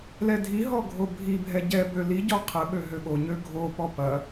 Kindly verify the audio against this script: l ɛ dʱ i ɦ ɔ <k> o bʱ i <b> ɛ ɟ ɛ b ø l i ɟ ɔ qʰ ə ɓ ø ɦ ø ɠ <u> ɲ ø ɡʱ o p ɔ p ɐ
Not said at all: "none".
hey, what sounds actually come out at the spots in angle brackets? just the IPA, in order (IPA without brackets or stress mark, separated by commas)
ɡʱ, bʱ, o